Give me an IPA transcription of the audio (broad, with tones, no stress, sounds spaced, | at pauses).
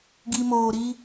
ɡ i˨ m oː˨ ɾ i˦